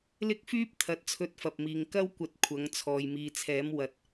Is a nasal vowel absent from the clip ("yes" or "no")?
yes